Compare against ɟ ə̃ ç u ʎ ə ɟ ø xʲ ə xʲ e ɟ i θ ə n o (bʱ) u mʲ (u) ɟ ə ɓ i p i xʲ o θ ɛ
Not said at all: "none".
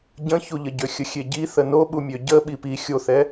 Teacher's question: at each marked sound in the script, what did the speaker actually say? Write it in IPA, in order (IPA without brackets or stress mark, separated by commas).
ɓ, ø